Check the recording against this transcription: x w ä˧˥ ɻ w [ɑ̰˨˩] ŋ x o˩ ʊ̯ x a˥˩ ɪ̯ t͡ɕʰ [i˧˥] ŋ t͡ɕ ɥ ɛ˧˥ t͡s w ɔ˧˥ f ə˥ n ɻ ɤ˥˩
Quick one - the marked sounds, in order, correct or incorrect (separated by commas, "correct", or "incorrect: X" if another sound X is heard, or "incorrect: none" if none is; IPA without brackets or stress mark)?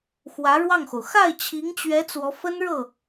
incorrect: ɑ˥˩, correct